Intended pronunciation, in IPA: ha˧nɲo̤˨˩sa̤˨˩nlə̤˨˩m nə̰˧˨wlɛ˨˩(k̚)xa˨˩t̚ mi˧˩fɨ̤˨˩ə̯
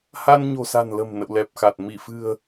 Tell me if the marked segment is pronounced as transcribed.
no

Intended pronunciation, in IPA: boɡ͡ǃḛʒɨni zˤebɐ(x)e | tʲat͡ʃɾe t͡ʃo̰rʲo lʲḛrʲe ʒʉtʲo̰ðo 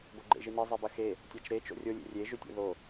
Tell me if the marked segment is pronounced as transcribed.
yes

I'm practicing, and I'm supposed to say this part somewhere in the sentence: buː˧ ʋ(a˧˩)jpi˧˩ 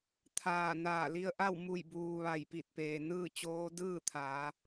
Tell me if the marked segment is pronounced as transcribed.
yes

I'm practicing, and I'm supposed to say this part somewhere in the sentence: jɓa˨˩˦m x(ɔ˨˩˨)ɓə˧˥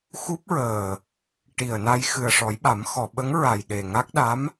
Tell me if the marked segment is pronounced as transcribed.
yes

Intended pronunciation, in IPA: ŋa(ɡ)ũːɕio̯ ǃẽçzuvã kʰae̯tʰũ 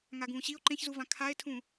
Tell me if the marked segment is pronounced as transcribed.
yes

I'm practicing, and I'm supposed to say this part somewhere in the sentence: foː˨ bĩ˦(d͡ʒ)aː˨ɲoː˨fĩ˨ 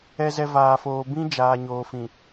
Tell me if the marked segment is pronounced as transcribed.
yes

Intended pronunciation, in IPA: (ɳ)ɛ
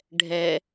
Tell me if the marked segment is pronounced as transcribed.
no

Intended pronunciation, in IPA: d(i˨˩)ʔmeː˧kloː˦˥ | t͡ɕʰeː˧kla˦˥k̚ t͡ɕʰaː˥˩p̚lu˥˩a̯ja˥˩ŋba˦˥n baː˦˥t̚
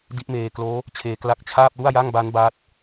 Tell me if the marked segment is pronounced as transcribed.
no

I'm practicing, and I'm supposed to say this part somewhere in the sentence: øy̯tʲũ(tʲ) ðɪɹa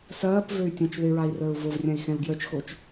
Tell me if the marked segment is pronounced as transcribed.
no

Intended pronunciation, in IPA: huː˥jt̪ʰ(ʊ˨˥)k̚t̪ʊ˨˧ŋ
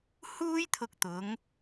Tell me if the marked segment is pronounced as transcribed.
no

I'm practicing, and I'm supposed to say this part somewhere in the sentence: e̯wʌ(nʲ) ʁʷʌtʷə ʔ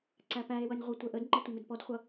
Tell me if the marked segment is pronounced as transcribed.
yes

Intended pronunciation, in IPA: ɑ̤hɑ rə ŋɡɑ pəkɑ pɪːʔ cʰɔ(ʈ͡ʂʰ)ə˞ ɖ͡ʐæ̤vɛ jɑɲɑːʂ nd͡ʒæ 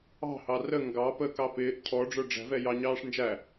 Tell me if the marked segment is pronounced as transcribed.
no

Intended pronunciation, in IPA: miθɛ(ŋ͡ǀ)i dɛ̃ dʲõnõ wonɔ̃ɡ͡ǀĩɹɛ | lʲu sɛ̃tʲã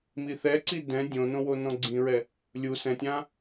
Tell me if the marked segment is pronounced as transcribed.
no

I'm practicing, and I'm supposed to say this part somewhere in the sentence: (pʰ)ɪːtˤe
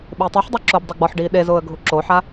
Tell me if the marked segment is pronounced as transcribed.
no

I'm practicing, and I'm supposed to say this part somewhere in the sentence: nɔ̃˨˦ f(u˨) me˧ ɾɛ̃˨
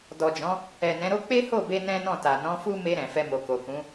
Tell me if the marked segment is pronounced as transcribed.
no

